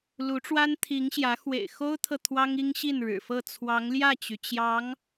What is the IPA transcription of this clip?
lu˧˥ʈ͡ʂwa˥nt̪ʰi˧˥ŋɕjä˧˥ xwḛ˨˩ɪ̯xo˥ʊ̯t̪ʰɤ˨ t̪ʰwɑ˥ŋi˥ŋɕi˥˩n ɻɻ̩˨˩fɤ˥˩ t͡sʰwɑ˧˥ŋljä˥˩t͡ɕy˩ t͡ɕjɑ˧˥ŋ

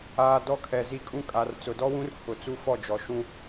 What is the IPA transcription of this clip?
aː˨ dɔ˦kʰɛ˨zi˦kʼũ˦ kʼa˨r t͡sʊ˨dɔ˦wũ˦rkʰʊ˨ t͡su˦fɔ˦˨d͡ʒɔ˨ ʃũ˦

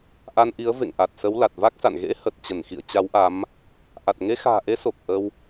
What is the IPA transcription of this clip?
ʔa˧nʔi˨˦ə̯ vḛ˧˨ŋʔa˨˩t̚ sə˨˦wla˨˩t̚va˦˥k̚sa̰˧˨n ɣḛ˧˥ hə˨˩t̚t͡ɕə˧˩nxḭ˧˨ə̯ t͡ɕa˨˦wʔa˨˦m | ʔa˨˩t̚ŋe˧xa̤ː˨˩ʔe˨˦ so˨˩k̚ʔə˧w

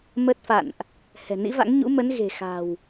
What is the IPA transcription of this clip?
mə˦˥t̚fa̰˧˨nʔ | hɛ̤˨˩nḭ˧˥va̰˧˥ŋ ɲṵ˧˥mə˨˦n ɣe̤˨˩xa̤˨˩w

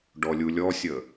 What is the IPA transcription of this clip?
ɖɔlʲulʲɔsʲə

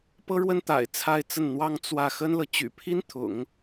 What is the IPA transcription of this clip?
pɤ˥ɻwə˥n t̪a̰˨˩ɪ̯t͡sʰa˥˧ɪ̯t͡sə˥˩nn̪wɑ˥ŋ t͡swä˥˩ xə˥nlɤ˨ t͡ɕy̰˨˩pʰi˥nt̪ʰʊ̰˨˩˦ŋ

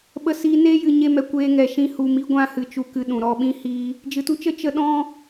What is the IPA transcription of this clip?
ɓə˧siː˧neː˦jɨ˨ ɲe˦mɛ˧ kʷeː˧ŋɛ˨ʃĩ˧ hu˨mi˧ɡʷã˧hɨ˨ t͡ʃu˧kɨ˧ ɗũ˨ɾɔ˦ ɓĩ˦hiː˦ | d͡ʒɨ˨tu˧t͡ʃə˦ t͡ʃə˧ ɗɔ̃˦

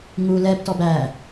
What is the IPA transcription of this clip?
ŋu lɛbtɔb æ

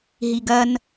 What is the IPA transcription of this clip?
ɦiɡɐn

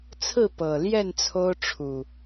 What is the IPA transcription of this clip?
t͡sʰɹ̩˥˨pɤ˨˩ljɛ˥˨n t͡sʰo˦ʊ̯ʈ͡ʂʰu˨˩

